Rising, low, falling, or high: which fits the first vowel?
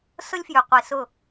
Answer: high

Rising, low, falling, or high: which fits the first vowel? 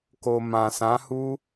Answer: low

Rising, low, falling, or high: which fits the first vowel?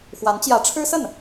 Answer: rising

